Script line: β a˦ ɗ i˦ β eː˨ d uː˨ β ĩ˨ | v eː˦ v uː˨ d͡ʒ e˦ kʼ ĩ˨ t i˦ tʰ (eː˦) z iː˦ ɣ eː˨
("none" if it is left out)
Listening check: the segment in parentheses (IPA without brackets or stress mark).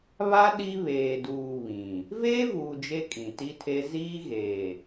e˦